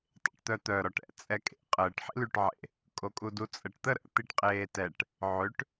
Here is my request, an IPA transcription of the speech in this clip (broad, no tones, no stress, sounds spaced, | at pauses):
tˤ ḛ ʈ t̪ œ t̪ œ ɾ ɔ ʈ ɛ̰ t͡sʼ ɛ kʼ ḛ qʼ əː ʈ ħ ḭ l y ʈ ʕ ḛ | kʼ o kʼ u d u t͡sʼ ə ʈ t̪ ə ɾ ə̰ t̪ i ʈ qʼ eː t ɛ ʈ | ʕ ø ʈ